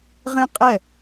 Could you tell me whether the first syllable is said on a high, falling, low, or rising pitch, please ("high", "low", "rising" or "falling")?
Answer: high